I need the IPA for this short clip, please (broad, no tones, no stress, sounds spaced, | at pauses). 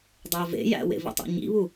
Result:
dˤ e ə̯ v ḛ j æ̰ w ḛ v ḭ tˤ ḭ ɲ ḭ β u